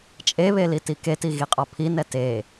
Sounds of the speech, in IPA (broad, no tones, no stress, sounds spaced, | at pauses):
t͡ʃʼ e β e l i t i k e t i ɣ i qʼ ɔ pʰ i n ɛ t e